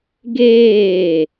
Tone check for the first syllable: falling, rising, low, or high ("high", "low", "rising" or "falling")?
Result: falling